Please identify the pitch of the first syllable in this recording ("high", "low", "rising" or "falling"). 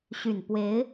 low